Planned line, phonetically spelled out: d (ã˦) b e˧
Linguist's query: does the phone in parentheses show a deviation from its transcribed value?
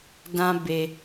no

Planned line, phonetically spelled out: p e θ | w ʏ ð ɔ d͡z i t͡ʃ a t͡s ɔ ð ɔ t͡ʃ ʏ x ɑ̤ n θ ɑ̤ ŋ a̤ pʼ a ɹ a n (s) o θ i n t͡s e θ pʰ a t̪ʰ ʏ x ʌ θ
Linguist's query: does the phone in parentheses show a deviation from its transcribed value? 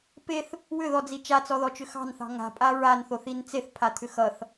yes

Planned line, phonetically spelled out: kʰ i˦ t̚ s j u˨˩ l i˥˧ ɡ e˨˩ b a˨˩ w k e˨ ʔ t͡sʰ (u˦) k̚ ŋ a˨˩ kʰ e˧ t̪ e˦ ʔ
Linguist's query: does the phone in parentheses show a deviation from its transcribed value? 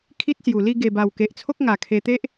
yes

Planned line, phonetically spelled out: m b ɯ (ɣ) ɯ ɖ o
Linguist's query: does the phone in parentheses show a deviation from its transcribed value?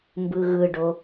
no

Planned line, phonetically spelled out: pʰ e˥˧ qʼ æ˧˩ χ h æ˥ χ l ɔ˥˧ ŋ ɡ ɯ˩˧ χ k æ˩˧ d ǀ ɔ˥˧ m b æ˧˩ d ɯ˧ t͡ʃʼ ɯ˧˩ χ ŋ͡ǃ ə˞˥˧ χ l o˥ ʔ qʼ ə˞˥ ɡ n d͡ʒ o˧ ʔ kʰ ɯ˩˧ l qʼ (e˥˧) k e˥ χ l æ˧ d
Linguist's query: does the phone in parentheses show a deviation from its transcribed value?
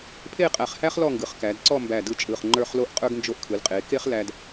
yes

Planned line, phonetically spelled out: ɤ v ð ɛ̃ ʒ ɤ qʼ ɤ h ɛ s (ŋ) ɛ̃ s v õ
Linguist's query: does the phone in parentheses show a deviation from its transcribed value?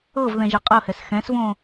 yes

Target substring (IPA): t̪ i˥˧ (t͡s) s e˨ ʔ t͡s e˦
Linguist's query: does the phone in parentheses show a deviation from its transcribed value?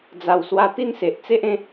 yes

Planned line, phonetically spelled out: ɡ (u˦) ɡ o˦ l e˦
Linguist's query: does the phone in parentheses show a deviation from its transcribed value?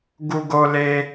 no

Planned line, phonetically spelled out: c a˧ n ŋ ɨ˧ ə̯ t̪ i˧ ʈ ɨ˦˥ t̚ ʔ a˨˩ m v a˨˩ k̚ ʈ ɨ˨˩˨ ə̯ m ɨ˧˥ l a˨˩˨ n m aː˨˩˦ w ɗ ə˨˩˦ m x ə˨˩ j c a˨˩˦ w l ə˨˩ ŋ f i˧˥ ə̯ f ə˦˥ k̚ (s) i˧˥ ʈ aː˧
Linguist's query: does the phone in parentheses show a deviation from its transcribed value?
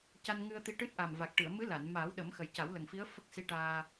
no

